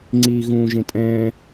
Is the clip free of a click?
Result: no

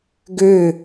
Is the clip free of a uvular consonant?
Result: yes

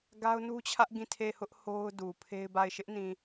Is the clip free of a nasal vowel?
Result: no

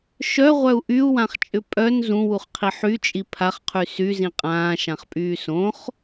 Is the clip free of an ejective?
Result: no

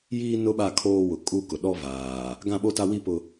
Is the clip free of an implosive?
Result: no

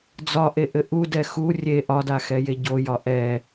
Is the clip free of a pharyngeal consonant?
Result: yes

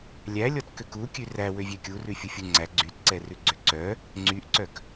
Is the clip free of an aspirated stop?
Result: yes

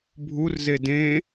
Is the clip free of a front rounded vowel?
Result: yes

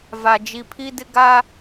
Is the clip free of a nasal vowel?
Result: yes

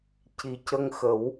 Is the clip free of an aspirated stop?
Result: yes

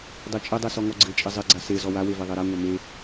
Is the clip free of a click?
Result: no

